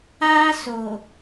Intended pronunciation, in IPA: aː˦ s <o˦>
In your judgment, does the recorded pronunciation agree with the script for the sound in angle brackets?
no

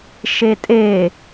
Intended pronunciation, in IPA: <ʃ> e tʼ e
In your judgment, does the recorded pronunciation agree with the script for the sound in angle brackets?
yes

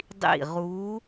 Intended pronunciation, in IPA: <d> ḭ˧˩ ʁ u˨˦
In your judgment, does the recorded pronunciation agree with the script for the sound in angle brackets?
no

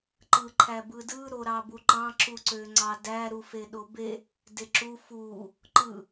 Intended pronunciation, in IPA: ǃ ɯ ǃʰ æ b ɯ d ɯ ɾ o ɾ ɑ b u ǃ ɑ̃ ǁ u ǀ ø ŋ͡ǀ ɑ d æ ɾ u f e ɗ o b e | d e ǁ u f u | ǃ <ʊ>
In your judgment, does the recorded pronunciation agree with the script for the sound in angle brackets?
no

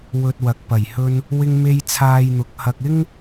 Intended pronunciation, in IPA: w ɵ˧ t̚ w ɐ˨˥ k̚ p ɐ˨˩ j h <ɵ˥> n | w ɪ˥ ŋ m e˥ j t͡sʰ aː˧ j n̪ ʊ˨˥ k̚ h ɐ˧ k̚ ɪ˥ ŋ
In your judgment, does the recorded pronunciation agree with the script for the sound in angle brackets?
yes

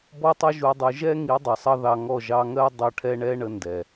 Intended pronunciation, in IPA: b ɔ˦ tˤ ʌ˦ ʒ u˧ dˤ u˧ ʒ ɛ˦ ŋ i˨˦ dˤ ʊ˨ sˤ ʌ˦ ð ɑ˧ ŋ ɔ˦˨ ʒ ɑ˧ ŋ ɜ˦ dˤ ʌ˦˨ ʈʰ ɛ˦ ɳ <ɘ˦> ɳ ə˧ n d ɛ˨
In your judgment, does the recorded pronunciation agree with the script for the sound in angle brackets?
no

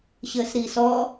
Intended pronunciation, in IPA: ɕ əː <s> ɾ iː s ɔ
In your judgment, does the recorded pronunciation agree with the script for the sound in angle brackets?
yes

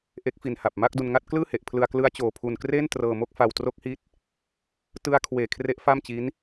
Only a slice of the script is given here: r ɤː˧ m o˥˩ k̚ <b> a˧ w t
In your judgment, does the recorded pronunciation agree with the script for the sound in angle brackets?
no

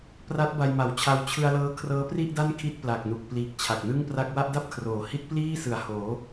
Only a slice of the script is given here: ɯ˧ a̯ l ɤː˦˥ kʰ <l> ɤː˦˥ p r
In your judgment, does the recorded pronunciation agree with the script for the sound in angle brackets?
no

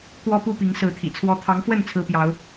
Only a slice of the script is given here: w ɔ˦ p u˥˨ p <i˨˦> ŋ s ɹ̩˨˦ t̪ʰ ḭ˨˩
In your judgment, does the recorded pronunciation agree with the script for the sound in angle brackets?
yes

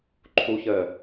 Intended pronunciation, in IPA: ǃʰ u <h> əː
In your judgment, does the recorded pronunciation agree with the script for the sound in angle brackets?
no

